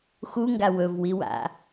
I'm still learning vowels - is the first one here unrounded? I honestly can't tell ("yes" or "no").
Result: no